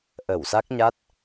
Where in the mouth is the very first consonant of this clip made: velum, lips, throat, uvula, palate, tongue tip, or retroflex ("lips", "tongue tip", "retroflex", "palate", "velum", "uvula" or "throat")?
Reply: throat